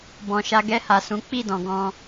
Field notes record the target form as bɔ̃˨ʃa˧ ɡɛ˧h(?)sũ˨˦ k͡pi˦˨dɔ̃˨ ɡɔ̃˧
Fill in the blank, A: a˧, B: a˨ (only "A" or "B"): B